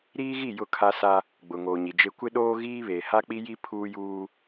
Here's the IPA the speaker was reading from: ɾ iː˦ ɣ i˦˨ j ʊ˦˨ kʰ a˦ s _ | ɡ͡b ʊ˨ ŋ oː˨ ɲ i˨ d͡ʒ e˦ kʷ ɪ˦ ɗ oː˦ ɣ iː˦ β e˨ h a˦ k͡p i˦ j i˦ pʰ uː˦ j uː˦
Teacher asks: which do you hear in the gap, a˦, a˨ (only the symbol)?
a˦